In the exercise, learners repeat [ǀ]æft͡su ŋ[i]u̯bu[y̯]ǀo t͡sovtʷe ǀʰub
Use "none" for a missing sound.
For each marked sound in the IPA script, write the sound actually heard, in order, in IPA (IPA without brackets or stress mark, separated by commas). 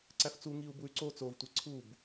ǀ, i, y̯